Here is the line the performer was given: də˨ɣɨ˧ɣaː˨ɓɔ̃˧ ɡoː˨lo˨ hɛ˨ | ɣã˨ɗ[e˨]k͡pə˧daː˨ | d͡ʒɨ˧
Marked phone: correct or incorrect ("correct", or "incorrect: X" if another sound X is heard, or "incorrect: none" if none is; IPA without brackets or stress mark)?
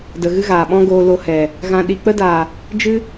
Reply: incorrect: i˨